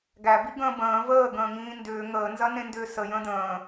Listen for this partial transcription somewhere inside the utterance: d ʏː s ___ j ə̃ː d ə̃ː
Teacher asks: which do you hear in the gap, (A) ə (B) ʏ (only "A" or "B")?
A